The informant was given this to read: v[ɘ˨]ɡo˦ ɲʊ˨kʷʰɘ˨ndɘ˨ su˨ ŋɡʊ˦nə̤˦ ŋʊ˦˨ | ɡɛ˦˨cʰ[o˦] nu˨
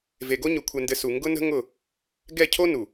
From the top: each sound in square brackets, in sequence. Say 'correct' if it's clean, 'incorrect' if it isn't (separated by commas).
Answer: incorrect, correct